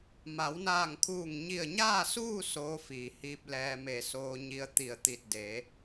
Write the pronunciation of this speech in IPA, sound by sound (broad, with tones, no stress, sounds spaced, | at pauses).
m a˩˧ w n aː˧˩ ŋ kʰ uː˧˩ ŋ ɲ i˧˩ ə̯ ɲ aː˥˨ s uː˥˨ s oː˧˥ f iː˩ h iː˧ p̚ l ɛː˧ m e˧˩ s oː˧ ɲ i˧ ə̯ t̪ i˧˩ ə̯ t̪ i˧˩ t̚ d e˩˧